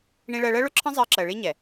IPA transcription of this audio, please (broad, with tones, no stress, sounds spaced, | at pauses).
ɳ ĩ˦ ɭ ɜ˧ ɭ ɜ˦ ɭ ʊ˦ ǁʰ ə̃˦ zˤ ɜː˧ ǁ ɜ˨ ɭ i˦ ɲ ɛ˨